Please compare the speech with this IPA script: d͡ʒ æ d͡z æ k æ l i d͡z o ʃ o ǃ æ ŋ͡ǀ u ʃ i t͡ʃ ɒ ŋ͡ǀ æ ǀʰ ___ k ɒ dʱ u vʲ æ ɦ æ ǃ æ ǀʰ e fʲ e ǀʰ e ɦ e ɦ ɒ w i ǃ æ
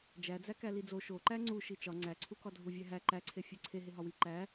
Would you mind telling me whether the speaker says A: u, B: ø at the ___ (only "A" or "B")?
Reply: A